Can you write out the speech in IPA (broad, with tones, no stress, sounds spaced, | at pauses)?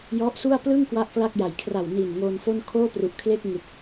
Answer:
j ɔ˦˥ ʔ s u˥˩ a̯ p l ɯ˥˩ ŋ k w a˥˩ ʔ k l a˥˩ k̚ j a˨˩ j kʰ r a˨˩ w n iː˨˩ n ŋ oː˧ n f o˥˩ n kʰ oː˥˩ p r u˨˩ ʔ kʰ l e˥˩ k̚ ŋ ɯ˨˩ k̚